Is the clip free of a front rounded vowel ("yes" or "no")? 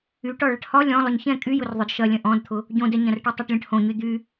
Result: no